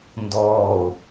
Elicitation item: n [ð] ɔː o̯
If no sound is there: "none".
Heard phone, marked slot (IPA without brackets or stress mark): d